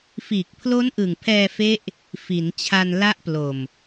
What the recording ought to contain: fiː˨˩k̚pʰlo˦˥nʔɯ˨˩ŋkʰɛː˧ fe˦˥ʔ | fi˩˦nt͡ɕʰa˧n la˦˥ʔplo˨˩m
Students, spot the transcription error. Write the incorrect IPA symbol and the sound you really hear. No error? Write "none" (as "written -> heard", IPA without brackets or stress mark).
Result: kʰ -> pʰ